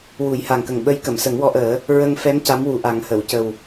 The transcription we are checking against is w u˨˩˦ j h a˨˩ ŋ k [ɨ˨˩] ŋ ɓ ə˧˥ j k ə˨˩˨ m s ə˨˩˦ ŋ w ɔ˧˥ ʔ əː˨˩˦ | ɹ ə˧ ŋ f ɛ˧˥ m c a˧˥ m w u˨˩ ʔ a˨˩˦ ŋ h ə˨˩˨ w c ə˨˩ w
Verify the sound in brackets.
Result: incorrect: ə˨˩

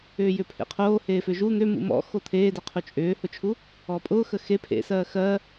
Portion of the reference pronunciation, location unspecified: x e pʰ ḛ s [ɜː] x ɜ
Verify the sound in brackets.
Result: correct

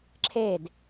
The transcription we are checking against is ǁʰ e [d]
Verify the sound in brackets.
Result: correct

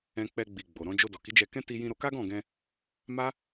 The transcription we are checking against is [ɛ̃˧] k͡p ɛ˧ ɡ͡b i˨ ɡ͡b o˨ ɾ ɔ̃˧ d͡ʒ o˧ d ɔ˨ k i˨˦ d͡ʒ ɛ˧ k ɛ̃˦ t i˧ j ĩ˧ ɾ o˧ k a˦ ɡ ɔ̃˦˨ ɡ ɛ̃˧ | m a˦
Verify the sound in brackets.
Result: correct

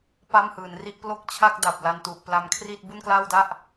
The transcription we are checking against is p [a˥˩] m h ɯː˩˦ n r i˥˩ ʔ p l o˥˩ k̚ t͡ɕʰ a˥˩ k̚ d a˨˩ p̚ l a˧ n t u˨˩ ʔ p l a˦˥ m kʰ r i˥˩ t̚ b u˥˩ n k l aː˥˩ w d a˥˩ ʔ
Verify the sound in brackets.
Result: correct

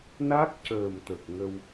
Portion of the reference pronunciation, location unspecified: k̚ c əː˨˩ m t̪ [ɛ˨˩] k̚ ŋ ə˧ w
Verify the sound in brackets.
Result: incorrect: ə˨˩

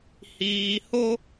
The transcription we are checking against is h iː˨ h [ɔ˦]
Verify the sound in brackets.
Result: incorrect: o˦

